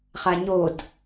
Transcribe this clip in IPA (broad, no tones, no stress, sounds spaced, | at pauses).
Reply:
χ a ɲ o d